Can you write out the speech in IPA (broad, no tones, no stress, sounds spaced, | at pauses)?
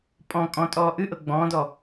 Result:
pʼ ɔ̃ kʼ ɔ̃ tʼ ɔː ʔ ɨ ʔ ɤ ɡ͡b ɔ̃ː d ɔ